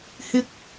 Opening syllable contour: high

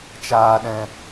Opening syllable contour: low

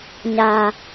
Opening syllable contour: low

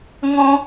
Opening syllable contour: high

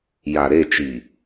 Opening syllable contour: low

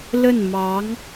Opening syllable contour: falling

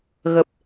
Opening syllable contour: low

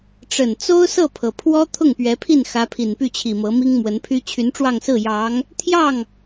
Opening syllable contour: low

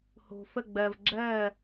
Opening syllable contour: low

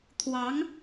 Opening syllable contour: rising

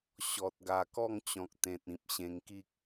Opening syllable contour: low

